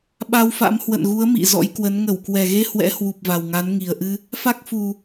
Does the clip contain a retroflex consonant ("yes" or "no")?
no